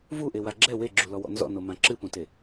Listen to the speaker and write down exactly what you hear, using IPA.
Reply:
v u ʔ e w a ɡ͡ǁ ɛ w e ɡ͡ǁ u l ɔ w ɔ̰ n z ɔ̰ n o m ã ǁ ɨ p ũ t e

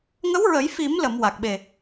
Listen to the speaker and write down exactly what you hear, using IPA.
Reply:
ŋ ə˧˥ w ɹ ə˨˩˦ j f i˨˩˦ m l ə˨˩˨ m w a˨˩ k̚ ɓ e˨˩

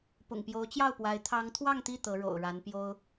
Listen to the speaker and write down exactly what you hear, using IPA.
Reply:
p ʊ̰˨˩ ŋ p j o˧˥ ʊ̯ t͡ɕ j ɑ˥˩ ʊ̯ p w a˧˥ ɪ̯ t̪ʰ ɑ˧˥ ŋ t̪ʰ w ɑ˥˧ ŋ t̪ i˥˩ t̪ ɤ˧˥ ɻ o̰˨˩ ʊ̯ ɻ a˧˥ n p j o˥ ʊ̯

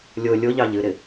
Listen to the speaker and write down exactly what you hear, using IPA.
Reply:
lʲ o lʲ o ʎ ɑ ʎ ɨ ɾ ɪ

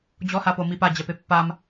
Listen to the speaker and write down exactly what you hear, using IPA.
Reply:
d͡ʑ ɔ h a p o m i p a d͡ʑ ɛ p e pː a m

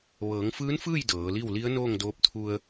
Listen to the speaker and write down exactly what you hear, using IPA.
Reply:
ʋ ɤː˩˧ ŋ f ɯː˧˥ n f ɯː˥˨ j d ɤː˩˧ l i˥˨ w l i˧˥ ə̯ n oː˥˨ ŋ d oː˧˥ p̚ t̪ʰ u˧ ə̯

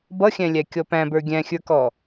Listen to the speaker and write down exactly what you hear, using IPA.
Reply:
b ʌ xʲ æ̃ lʲ æ kʲ ɔ p æ̃ b ə˞ ɡʲ æ̃ xʲ ə˞ k ɔ

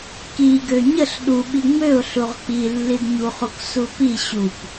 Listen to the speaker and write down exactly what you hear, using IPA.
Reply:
k i ɡ ø ɲ ə ɬ ɗ u ɓ i ŋ͡m ø ʊ̯ ɬ u ʁ k͡p i lː i d ɲ u χ u k s u p i ɕ u p

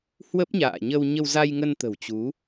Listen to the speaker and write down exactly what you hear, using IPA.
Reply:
h w ə˦˥ p̚ ɲ a̰ː˧˨ ɲ ə˧ w ɲ ə˧ w z a˧ j ŋ ə˧ n t̪ ə̤˨˩ w t͡ɕ u˨˦

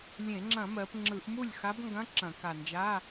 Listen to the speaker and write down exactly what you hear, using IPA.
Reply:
lʲ ẽ˧˩˧ ŋ͡ǁ ɐ̃˧˩˧ m ɜ˩˧ p ŋ͡ǁ ɯ˧˩˧ ʔ m u˥˩ lʲ x a˧˥ b ŋ ɡ ɐ̃˧˥˧ ǁ ɐ̃˧˩˧ k a˨˩ n d͡ʒ a˧˥˧

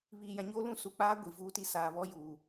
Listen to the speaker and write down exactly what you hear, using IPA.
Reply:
β iː˨ j ã˨ ɲ oː˦ l ũ˦ s u˨ k͡p aː˦ ɡʷ i˨ v uː˦ t i˦ s aː˨ β ɔ˦ j uː˨

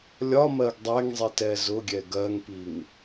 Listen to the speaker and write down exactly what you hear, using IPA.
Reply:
lʲ ɒ m ɜ ɡ dˤ ɛ ŋ zˤ i t ɛ z ʊ ɡʲ ɛ ɡ ɜ ŋ p i ŋ

